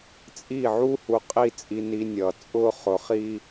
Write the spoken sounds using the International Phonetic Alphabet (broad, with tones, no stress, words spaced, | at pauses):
t͡sʼi˦˨ʕu˦ hu˧qʼi˦˨t͡sʼi˧ ni˧nʲʌː˨ t͡sʼʊː˦χʊ˨˦χi˦